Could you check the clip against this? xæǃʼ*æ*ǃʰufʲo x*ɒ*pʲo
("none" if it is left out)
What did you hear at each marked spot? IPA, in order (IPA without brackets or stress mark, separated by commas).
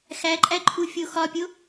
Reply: æ, ɒ